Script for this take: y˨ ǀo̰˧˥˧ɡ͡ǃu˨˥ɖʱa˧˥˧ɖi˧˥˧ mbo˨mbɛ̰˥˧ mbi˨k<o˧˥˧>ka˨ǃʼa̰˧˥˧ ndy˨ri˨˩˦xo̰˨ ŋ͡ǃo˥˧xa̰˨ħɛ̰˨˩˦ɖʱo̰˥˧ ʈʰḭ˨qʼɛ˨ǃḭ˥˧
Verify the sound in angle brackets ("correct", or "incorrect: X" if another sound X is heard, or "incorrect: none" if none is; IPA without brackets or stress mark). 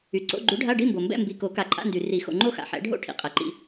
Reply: incorrect: o˨˩˦